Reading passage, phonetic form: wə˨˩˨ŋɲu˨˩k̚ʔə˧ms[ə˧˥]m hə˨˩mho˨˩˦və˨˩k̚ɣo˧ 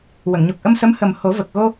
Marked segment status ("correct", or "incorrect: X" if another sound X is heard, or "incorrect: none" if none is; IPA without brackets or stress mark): correct